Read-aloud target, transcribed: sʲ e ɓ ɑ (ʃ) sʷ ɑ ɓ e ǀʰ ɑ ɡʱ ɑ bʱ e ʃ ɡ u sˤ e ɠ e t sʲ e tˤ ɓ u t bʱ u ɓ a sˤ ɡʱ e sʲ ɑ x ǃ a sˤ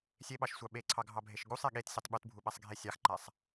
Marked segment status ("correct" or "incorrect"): correct